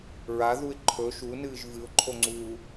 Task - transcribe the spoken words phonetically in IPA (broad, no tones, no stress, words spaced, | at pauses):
ɹa ðuɪ̯ǃʰɵ ʃunɨːʒ vɨʊ̯ǃʰoŋ͡ǀuː